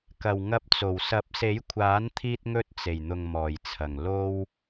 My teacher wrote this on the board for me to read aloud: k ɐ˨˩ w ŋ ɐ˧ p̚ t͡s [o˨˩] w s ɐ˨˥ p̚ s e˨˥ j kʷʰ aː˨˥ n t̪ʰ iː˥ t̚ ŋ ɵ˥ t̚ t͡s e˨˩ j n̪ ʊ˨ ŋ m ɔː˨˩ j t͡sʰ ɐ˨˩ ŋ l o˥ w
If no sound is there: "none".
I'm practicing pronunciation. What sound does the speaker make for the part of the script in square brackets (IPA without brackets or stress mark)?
o˨˩